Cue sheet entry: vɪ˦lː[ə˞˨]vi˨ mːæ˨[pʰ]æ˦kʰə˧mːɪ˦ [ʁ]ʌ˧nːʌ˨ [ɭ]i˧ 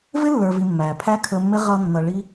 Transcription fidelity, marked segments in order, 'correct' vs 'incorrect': correct, correct, correct, correct

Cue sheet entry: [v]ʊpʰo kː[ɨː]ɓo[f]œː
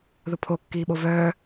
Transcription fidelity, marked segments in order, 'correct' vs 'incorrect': incorrect, incorrect, incorrect

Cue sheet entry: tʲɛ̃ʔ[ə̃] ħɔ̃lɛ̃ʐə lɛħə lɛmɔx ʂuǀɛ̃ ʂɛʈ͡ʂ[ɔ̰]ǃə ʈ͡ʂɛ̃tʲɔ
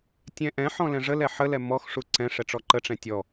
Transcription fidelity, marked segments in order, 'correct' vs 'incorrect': incorrect, incorrect

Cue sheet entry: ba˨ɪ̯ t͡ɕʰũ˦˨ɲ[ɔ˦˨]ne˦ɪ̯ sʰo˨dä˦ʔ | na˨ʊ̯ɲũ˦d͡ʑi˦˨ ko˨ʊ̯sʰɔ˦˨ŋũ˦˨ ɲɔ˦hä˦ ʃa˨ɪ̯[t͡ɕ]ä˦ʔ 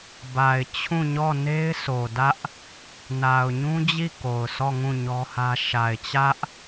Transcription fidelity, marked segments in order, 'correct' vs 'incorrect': correct, correct

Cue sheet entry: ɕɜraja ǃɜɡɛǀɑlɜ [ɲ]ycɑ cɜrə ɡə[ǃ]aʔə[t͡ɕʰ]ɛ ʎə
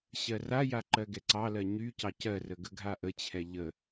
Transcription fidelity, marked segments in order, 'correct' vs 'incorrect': correct, incorrect, correct

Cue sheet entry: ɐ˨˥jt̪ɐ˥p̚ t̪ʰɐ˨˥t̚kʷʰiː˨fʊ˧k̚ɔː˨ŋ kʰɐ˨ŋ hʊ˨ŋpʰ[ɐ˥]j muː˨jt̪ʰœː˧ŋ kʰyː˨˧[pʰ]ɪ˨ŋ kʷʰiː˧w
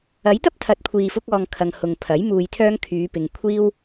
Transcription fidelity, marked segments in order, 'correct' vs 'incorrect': incorrect, incorrect

